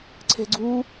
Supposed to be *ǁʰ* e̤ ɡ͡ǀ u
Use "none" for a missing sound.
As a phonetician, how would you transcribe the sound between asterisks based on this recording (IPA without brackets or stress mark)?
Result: ǀʰ